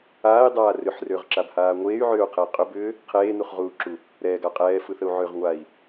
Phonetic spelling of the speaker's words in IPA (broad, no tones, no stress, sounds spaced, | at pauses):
aː i̯ dˤ aː r ʏ ħ r ʏː ʁ ǁ a b h aː ŋʷ eː y̯ ʕ ʏː u̯ qʰ e i̯ qʼ ʏ b ʏː | qʰ eː n u χ ʁ uː ǁ u | ɾ ɛː ɡ a qʼ ɛː f ɯ θ ə u̯ ʕ ø ʁ ŋʷ a i̯